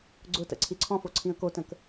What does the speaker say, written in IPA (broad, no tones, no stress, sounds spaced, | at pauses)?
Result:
ɡ͡ǀ ʊ t ə̰ ǀʰ i ǀʰ ɔ̃ f o ǀʰ ĩ ə̯ k o t ə̃ k